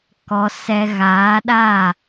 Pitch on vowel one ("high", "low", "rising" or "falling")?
low